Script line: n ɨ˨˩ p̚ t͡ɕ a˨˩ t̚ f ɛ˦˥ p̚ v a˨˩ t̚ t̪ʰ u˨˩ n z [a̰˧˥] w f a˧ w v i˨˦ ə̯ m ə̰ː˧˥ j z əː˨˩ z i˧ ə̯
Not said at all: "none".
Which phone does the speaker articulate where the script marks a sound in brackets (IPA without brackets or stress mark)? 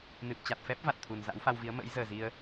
a̰˧˥